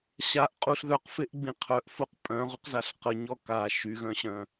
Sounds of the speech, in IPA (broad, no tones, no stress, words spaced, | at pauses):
ɕaʔqʼuɬ ðœqfeʔɡ͡bĩ qʰœʔfoq pʼœ̃ʁuqzaɬ qəɲɔ ka ʃyɣœ̃ɕœ̃